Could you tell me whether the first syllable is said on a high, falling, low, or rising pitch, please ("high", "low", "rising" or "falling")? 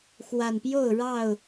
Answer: low